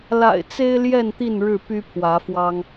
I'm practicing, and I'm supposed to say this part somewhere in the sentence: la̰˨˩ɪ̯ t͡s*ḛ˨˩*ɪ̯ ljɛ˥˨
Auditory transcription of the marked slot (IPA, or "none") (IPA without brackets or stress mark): e˦